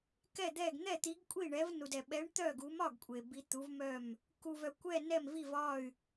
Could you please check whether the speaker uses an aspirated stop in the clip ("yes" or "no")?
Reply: no